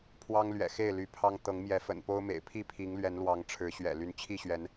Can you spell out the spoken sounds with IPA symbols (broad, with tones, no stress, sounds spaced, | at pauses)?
pʰ w ɑ˦ ŋ l ɥ ɛ̰˨˩ x e˥˨ ɪ̯ l y˨˦ pʰ ɑ˦ ŋ t̪ ɤ˨˦ ŋ m j ɛ˨˦ f ə̰˨˩ n p o˦ ʊ̯ m ḛ˨˩ ɪ̯ pʰ i˥˨ pʰ i˨˦ ŋ l ɥ ɛ˨˦ n l w ɑ˨˦ ŋ ʈ͡ʂʰ ɻ̩˨˦ ɕ ɥ ɛ̰˨˩ l y˨˦ n t͡ɕʰ i˥˨ ɕ ɥ ɛ˨˦ n